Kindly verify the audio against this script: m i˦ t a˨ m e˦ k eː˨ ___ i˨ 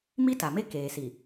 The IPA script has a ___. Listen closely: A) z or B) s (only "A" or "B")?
B